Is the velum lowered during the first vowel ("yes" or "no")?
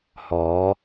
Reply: no